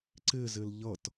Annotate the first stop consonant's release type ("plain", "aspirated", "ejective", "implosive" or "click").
click